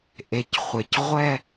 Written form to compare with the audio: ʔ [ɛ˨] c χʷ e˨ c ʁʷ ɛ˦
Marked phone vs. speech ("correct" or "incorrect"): incorrect